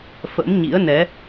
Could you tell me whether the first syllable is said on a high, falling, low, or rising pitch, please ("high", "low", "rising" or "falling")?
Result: rising